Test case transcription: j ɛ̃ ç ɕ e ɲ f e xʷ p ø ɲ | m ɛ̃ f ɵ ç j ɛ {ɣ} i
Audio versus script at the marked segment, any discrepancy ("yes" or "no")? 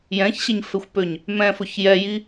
yes